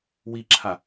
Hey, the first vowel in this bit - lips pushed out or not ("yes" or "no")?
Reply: no